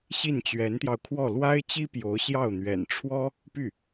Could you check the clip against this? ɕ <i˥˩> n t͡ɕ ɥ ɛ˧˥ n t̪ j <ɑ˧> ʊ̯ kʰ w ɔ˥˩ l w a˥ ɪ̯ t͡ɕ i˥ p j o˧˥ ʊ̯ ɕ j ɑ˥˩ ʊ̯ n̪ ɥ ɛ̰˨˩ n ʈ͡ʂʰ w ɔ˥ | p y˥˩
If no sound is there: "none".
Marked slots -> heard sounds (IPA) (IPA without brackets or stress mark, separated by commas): i˥˩, ɑ˧